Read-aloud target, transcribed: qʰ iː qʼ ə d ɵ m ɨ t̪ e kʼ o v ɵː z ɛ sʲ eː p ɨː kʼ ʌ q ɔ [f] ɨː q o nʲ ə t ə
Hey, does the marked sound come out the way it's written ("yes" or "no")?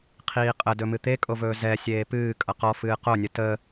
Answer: yes